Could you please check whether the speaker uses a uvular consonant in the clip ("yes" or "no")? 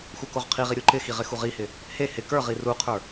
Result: yes